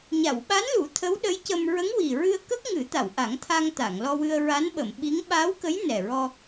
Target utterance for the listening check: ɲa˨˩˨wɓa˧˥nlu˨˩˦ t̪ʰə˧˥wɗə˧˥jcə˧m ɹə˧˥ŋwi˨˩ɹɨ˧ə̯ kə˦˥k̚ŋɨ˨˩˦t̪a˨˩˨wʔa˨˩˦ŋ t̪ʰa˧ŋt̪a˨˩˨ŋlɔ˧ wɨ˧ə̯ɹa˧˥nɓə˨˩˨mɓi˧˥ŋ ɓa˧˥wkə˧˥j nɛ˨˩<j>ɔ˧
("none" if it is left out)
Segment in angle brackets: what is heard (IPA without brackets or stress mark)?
ɹ